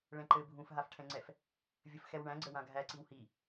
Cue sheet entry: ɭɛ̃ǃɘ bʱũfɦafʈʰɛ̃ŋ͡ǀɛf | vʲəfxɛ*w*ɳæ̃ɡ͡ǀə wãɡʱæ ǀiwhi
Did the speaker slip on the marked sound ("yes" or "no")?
no